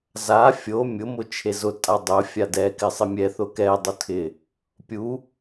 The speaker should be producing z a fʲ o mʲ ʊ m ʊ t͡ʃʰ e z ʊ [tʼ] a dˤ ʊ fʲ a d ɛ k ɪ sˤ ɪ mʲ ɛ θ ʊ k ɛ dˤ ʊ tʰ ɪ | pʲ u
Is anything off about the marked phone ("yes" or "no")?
no